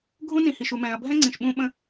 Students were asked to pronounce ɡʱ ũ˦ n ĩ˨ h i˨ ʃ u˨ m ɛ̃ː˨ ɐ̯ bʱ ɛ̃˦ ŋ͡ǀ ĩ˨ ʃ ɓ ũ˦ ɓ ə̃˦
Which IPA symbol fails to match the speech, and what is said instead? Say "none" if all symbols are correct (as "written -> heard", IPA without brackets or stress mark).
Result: none